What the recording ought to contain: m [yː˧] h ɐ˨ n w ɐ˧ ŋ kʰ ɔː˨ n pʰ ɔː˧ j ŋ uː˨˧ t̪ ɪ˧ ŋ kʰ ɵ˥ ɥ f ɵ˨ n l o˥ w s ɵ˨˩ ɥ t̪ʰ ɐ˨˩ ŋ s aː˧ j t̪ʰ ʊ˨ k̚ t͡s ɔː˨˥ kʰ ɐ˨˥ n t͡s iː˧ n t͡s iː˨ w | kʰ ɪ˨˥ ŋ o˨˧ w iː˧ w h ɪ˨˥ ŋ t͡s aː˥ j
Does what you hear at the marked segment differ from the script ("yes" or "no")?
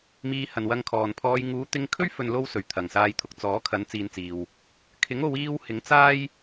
yes